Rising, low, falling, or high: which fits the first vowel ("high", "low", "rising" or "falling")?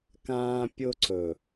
high